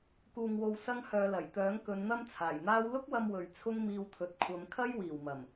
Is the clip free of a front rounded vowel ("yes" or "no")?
no